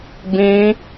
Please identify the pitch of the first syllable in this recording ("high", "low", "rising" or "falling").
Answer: high